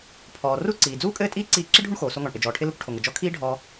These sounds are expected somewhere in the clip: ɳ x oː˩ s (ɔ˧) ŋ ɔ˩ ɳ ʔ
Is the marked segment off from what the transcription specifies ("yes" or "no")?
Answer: yes